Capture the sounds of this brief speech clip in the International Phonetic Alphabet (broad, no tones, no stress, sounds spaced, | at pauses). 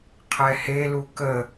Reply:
qʰ ɛ h e l u k ə